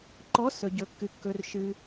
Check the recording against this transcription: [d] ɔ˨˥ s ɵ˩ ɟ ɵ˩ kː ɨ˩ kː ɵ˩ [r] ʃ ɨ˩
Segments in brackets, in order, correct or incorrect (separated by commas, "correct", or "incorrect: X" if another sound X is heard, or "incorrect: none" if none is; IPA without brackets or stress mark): incorrect: ǃ, correct